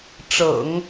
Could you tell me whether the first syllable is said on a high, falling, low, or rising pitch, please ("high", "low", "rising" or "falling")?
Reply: low